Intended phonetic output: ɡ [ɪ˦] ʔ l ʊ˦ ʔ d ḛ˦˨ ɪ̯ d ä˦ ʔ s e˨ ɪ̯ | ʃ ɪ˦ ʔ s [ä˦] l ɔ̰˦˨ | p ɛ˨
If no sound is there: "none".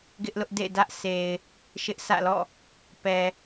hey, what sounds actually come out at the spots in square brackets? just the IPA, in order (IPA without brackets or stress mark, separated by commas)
ɪ˦, ä̰˦˨